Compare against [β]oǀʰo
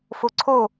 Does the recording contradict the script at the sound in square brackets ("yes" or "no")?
yes